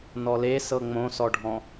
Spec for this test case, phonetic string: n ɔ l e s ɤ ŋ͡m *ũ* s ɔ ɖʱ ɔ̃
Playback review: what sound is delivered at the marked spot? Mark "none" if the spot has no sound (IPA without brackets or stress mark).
õ